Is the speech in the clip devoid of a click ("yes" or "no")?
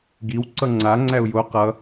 no